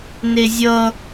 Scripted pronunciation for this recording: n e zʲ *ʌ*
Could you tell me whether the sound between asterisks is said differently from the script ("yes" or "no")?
no